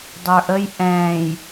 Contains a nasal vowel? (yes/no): yes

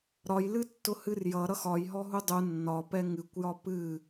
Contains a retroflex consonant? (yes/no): no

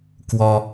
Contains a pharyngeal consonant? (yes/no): no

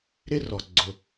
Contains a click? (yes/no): yes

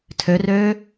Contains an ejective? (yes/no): no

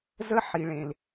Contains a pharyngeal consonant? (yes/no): yes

